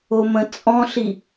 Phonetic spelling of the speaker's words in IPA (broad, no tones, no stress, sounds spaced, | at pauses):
o m ə̃ t͡sʼ ɔ̃ ɬ i